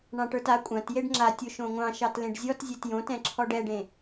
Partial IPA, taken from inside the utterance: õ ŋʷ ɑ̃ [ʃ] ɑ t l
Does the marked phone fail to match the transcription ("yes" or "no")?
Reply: no